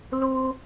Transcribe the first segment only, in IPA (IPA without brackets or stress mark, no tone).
l